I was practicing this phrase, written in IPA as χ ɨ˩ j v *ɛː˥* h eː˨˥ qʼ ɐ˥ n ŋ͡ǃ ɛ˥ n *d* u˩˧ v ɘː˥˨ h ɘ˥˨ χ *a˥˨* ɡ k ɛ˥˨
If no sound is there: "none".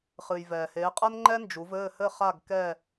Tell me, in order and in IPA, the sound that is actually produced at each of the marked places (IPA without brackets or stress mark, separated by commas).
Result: ɛː˩, d͡ʒ, a˥˨